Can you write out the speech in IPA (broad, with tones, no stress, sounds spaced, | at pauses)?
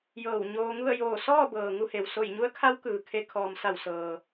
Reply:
j ɤː˧˩ w ɲ oː˧ ŋ u˥˨ ə̯ j oː˧˩ s ɔː˥˨ b ɤː˩ ŋ u˥˨ h e˩ w s o˧˩ j ɲ u˧˥ ə̯ kʰ a˧˥ w k ɯː˩ kʰ e˧ kʰ ɔː˩ m s a˧˩ w s ɤː˩